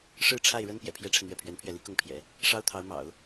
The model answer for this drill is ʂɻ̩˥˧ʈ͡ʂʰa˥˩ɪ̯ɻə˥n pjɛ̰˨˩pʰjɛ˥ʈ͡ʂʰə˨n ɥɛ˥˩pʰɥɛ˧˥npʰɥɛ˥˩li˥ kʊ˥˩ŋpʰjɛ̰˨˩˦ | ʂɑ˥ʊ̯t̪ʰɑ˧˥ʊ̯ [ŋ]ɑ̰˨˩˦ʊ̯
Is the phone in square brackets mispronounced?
yes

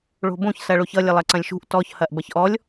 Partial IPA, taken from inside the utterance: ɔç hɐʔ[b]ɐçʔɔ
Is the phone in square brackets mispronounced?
no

